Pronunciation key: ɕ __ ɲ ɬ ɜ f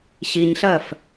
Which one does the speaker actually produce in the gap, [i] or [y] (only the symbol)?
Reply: i